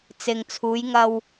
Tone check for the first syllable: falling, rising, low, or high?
low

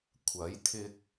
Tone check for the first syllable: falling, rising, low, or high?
rising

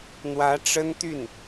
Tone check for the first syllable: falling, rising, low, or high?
rising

